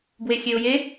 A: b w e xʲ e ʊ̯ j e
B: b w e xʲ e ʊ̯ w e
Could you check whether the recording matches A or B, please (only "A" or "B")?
A